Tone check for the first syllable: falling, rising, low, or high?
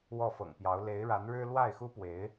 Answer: falling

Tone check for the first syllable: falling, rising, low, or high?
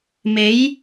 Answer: rising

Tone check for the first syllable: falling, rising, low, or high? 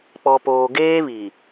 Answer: low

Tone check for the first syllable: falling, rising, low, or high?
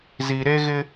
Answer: low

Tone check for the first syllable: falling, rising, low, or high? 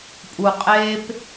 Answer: low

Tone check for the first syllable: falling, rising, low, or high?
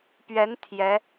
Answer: rising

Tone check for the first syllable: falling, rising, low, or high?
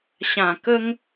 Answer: low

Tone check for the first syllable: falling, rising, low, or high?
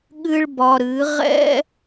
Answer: high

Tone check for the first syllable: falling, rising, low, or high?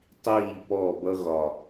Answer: falling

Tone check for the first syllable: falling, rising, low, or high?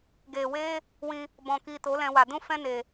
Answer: low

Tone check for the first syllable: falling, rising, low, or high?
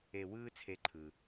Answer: low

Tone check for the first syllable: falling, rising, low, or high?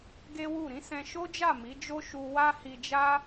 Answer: high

